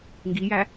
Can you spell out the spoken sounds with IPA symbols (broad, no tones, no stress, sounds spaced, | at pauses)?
ŋ ɡ i j æ